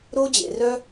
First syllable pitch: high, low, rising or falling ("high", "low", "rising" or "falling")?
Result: high